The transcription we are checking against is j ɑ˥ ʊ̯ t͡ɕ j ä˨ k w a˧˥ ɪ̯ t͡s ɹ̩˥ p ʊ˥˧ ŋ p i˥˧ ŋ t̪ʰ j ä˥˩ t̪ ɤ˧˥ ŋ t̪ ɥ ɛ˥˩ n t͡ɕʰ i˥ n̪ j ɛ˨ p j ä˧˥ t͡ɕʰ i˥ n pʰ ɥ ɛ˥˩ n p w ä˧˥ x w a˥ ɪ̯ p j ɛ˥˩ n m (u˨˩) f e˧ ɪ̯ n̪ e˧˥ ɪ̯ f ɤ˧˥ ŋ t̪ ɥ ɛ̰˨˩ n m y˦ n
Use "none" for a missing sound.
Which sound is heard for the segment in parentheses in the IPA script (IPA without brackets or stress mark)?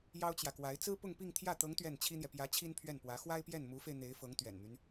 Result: u˧˥